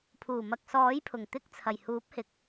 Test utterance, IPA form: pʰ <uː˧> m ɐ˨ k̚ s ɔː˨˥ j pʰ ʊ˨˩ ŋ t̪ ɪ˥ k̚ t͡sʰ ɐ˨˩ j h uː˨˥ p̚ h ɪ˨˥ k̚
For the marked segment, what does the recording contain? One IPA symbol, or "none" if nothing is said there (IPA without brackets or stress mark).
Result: uː˨˩